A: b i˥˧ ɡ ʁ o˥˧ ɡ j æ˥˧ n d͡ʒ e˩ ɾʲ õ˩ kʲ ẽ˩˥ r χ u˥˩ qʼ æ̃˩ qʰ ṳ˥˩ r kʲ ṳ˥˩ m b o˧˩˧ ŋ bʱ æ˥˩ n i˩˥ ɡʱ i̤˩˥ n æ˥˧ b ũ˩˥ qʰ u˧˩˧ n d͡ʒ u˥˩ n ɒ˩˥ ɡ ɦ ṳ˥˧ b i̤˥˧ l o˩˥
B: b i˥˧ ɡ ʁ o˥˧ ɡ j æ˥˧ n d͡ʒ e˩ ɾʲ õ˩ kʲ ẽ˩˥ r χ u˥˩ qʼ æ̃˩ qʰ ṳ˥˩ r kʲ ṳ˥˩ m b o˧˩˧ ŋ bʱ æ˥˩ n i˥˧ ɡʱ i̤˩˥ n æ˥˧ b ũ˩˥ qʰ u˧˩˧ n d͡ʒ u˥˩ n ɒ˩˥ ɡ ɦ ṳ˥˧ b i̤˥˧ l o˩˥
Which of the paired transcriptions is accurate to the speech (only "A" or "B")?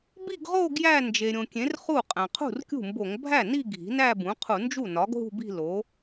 B